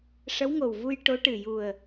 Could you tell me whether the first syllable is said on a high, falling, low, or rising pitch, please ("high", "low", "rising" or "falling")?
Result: rising